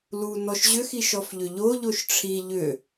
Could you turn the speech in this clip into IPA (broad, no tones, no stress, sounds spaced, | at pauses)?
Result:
l u n ɔ ʃ ʑ ʏ x i ʃ ɔ f ʎ ʏ ʎ o ʎ o ʃ ʈ͡ʂʰ i ʎ ʏ